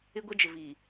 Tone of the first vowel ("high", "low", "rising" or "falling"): high